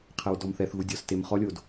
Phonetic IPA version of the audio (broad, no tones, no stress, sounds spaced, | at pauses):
qʰ ɛ w d ɔ m θ ɛ θ ɣ u dʲ ɔ s t e m χ ɔ lʲ o d